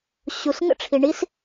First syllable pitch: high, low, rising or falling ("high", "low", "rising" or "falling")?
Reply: low